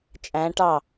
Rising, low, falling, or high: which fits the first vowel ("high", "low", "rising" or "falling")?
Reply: rising